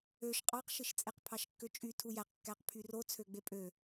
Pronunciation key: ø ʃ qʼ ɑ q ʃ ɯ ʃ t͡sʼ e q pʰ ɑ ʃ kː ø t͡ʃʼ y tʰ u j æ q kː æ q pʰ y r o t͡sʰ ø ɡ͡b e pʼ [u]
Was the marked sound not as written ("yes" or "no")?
yes